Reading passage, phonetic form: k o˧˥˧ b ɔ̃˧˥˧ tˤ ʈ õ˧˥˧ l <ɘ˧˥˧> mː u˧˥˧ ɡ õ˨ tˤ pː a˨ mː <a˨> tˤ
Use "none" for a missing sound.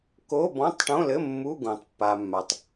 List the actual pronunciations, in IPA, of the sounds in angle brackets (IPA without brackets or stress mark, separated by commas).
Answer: ɘ˧˥˧, a˨